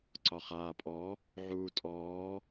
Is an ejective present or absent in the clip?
present